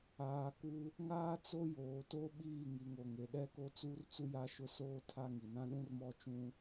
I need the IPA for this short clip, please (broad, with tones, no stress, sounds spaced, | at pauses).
aː˨ k u˦ | ŋ aː˦ t͡s o˦ j oː˨ t o˦ ɓ iː˦˨ ŋ i˨ ŋ o˨ ŋ e˨ ɗ ɛ˦ k o˦ t͡s uː˦ r t͡s u˦ j a˦ ʃ ʊ˦ s oː˦ tʰ a˦ ŋ i˨ n ã˦ ɗ ũ˦ r m ɔ˦ t͡ʃ ũ˦